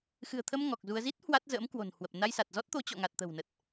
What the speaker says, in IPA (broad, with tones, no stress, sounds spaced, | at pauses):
x ɨ̤˨˩ ə̯ t̪ʰ ə˧ m ŋ ɔ˨˩ k̚ z u˧ ə̯ z i˦˥ t̚ h w a˦˥ t̚ z ə̰ː˧˥ m k w o̤˨˩ n h w ə˨˩ p̚ n a˧ j s a˨˩ t̚ z ɔ˦˥ t̚ t̪ o˨˦ t͡ɕ ɔ̰˧˨ ŋ a˨˩ t̚ t̪ ə̤˨˩ w n ə˨˩ t̚